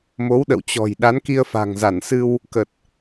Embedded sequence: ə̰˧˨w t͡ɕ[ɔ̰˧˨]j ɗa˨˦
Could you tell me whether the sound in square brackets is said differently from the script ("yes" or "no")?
yes